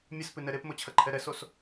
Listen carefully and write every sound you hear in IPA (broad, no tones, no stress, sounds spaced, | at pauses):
mʲ ɨ s p ɨ n ɛ ɾ e p m o t͡ɕʰ ɐ ǃʰ ɛ ɾ ɛ s o s